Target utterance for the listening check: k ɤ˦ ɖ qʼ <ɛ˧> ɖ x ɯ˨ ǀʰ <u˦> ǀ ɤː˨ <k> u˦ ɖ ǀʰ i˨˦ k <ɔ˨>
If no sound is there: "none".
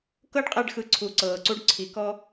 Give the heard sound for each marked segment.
ɛ˧, u˨, ǀ, ɔ˦

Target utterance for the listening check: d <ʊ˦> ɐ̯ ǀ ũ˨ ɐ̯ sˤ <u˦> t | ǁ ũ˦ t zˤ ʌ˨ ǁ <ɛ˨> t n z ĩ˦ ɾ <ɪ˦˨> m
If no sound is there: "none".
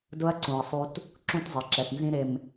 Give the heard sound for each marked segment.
ʊ˦, u˦, ɛ˨, ɪ˨

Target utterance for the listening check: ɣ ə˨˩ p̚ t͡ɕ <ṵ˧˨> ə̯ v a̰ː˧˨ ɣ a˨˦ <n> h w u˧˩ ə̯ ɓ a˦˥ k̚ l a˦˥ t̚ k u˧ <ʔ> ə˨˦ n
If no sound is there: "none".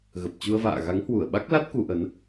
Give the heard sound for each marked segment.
u˧, ŋ, ʔ

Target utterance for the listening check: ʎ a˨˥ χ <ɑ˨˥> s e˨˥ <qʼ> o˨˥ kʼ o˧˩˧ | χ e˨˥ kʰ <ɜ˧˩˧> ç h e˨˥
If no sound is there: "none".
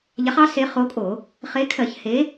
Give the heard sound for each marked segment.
ɑ˨˥, χ, ɜ˧˩˧

